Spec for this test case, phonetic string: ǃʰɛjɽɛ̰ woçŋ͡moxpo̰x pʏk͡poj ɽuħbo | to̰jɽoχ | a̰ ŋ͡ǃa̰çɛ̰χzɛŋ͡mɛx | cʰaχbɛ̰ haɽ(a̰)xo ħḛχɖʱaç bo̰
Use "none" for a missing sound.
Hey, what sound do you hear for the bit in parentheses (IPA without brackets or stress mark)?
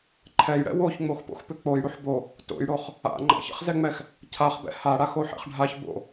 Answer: a